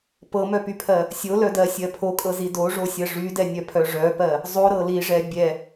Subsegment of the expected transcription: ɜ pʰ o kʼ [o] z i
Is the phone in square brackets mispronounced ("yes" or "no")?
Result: yes